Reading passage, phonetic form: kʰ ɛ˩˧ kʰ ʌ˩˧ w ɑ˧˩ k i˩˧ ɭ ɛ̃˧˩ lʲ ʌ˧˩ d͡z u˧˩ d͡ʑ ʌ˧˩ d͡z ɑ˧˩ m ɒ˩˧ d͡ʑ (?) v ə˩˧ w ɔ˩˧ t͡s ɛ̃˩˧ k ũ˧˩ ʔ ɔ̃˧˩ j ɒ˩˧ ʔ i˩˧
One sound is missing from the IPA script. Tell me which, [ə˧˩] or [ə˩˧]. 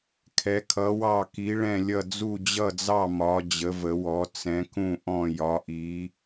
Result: ə˩˧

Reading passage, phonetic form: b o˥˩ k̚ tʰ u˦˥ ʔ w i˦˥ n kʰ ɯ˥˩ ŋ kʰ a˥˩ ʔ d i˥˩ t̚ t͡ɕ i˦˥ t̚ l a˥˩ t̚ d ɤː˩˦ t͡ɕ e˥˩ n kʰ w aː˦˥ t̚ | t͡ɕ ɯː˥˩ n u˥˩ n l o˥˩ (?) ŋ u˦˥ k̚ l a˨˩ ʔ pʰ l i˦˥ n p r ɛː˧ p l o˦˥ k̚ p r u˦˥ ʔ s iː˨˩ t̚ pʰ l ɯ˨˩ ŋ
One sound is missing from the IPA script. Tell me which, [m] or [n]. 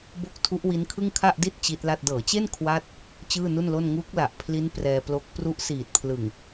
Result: n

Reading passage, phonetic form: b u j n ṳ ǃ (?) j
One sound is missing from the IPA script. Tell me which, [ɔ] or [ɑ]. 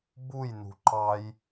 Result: ɑ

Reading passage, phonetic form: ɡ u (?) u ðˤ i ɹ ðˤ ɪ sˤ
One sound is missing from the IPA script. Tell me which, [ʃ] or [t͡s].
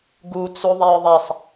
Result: t͡s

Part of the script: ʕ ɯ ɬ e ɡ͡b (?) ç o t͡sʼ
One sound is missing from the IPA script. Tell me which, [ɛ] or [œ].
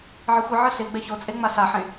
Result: ɛ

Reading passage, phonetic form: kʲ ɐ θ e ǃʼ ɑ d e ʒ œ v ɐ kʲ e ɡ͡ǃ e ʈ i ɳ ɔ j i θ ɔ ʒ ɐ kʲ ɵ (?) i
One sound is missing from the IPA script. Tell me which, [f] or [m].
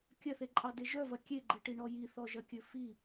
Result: f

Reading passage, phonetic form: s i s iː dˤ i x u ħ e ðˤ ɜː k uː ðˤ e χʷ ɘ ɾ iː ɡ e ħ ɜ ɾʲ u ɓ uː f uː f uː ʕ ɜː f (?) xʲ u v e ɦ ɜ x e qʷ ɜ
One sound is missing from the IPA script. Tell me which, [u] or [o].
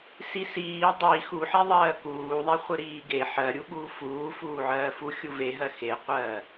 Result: u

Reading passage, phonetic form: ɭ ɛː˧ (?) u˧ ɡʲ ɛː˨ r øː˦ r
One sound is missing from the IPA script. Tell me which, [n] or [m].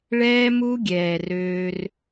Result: m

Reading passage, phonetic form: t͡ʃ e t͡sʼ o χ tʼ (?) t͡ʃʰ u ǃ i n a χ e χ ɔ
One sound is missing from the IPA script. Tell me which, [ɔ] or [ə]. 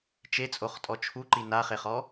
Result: ɔ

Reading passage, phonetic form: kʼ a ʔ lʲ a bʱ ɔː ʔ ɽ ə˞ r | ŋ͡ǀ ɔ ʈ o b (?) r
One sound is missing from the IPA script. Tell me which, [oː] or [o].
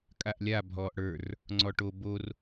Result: o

